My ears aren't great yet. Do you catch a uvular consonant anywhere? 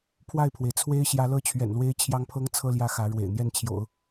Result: no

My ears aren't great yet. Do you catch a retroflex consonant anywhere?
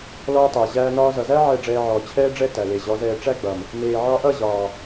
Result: yes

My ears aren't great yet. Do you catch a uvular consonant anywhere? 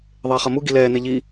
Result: yes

